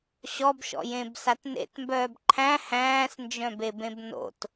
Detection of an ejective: absent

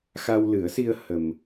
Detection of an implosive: absent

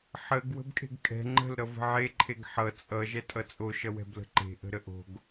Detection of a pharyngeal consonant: present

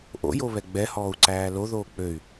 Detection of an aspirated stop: absent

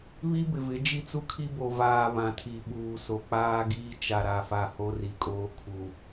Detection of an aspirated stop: present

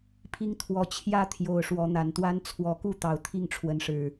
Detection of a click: absent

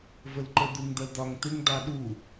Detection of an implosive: present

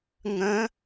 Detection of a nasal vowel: present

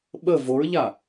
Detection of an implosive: present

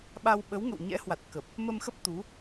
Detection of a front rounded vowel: absent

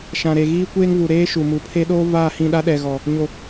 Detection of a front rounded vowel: absent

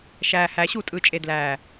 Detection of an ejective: present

